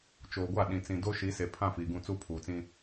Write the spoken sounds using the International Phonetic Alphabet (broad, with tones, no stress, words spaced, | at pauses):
t͡ʃoː˨ɡʷa˦˨ɗĩ˨ t͡sĩ˨do˦ʃi˨˦ se˨ pʰã˦˨fiː˨ ɡũ˦˨t͡su˦ pʰuː˨t͡sĩ˦